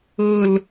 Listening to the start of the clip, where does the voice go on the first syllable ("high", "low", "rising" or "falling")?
low